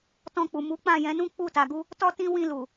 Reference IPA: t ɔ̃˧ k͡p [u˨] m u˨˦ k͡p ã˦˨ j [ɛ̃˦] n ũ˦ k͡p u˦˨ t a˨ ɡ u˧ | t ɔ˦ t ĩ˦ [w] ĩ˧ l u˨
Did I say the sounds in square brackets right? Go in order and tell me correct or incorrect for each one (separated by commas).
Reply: correct, incorrect, correct